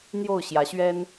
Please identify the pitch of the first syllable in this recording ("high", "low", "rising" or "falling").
falling